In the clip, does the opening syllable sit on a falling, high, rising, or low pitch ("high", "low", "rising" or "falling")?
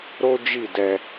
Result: high